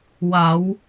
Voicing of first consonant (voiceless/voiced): voiced